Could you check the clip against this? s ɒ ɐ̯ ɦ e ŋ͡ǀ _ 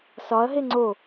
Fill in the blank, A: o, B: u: A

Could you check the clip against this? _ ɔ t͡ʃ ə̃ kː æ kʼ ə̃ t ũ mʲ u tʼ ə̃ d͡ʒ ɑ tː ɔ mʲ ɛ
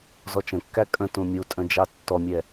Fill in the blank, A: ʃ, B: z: B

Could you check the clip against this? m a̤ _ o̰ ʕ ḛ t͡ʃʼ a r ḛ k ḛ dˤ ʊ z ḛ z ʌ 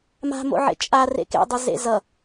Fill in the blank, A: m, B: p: A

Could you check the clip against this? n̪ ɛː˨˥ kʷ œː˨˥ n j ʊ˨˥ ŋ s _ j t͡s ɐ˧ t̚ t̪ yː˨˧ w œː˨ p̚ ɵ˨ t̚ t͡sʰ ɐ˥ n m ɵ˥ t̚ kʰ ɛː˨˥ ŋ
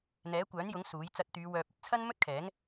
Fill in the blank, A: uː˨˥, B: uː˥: A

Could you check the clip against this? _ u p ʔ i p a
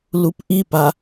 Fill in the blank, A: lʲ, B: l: B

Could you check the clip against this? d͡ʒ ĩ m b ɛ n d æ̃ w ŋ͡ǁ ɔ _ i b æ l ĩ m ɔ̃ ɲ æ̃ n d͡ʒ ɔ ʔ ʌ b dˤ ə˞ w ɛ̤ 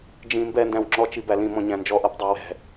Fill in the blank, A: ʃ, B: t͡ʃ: B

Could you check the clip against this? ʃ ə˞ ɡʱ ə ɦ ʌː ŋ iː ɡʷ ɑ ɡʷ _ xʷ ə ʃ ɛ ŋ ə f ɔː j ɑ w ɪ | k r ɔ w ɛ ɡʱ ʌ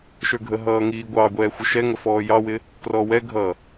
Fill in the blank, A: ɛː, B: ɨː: A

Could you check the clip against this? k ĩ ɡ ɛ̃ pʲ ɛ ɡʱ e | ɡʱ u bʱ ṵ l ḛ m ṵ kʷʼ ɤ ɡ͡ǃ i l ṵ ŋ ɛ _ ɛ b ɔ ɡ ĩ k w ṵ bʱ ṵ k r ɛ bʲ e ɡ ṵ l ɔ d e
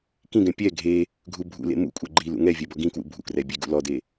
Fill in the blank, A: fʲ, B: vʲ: B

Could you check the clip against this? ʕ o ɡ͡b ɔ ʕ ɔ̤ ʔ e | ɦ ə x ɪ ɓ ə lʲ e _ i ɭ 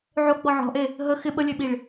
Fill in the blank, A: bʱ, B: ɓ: B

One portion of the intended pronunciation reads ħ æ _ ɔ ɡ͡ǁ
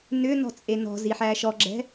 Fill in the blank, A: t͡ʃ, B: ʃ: B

